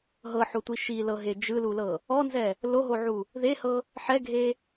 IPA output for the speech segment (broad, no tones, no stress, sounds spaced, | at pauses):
ɦ ɤ ħ o tʷ i ʃ i l ɤ ɦ e d͡ʒ ɯ l u l ɤ | ɔ n z ɛ | l o ɦ o ʕ u | ð e h ɤ | ħ ɛ ɡʱ e